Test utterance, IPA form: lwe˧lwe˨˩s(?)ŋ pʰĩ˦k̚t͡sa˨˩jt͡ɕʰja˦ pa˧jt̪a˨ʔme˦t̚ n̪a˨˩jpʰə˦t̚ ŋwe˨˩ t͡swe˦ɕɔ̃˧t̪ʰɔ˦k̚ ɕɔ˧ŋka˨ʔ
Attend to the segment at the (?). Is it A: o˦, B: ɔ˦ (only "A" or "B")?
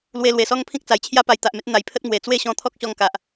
B